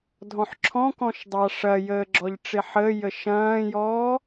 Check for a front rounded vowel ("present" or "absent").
absent